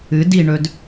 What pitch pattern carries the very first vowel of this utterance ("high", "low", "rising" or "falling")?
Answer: rising